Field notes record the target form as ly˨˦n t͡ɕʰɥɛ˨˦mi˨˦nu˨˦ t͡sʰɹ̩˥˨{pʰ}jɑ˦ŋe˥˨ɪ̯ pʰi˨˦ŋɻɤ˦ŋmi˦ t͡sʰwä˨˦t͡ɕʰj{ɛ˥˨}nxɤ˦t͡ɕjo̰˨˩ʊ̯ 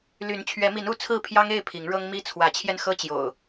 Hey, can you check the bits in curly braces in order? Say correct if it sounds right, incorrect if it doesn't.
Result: correct, incorrect

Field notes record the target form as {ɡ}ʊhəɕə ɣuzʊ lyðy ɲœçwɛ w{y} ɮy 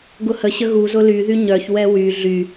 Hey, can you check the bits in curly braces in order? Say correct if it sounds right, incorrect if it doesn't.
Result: correct, correct

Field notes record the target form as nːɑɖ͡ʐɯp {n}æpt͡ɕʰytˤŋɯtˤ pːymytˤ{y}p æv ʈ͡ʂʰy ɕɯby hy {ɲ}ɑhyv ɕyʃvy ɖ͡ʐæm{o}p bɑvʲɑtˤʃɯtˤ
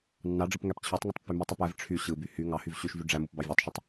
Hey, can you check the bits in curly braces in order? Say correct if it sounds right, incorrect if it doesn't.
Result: incorrect, correct, incorrect, incorrect

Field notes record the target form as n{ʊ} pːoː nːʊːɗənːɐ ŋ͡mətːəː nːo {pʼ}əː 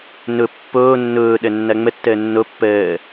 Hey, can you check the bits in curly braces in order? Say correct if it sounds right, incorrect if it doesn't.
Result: correct, incorrect

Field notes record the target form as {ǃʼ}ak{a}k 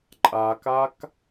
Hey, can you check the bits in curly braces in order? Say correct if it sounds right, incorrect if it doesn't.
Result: correct, correct

